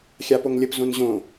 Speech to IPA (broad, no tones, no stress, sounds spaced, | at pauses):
xʲ a p o ŋ lʲ ə p z õ n ʑ õ